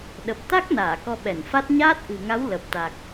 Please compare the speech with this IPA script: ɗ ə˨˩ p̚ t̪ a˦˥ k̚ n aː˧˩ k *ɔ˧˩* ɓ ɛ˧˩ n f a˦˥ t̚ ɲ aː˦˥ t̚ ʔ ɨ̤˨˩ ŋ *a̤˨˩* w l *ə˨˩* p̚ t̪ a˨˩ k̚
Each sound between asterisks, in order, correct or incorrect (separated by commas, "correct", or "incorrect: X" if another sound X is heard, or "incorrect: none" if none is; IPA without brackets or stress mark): incorrect: ɔ˧, incorrect: a˨˦, correct